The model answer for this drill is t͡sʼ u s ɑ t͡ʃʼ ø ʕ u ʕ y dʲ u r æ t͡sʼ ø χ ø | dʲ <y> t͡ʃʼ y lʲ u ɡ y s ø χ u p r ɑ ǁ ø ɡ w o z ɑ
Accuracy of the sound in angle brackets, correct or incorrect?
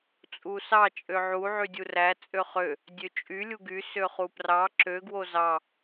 incorrect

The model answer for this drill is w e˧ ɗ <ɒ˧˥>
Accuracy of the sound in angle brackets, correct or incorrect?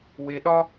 incorrect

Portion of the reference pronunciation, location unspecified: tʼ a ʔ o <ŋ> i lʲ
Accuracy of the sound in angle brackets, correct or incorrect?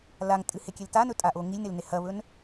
correct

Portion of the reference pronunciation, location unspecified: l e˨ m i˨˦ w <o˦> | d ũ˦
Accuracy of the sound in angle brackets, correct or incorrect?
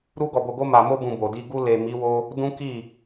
correct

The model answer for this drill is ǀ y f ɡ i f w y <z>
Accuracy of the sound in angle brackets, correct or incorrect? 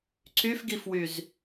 correct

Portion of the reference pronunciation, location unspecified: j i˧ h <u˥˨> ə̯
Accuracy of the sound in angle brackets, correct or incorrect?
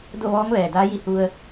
incorrect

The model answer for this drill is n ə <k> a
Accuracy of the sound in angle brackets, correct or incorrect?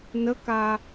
correct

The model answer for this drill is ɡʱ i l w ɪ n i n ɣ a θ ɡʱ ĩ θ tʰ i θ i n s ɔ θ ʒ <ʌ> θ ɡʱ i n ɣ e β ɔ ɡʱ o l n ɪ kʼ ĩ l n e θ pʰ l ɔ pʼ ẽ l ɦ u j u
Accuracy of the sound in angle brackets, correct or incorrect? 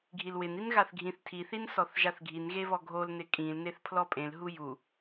incorrect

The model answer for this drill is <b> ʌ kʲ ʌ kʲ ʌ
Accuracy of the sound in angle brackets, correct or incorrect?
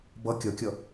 correct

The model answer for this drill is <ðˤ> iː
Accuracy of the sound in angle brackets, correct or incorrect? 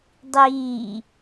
incorrect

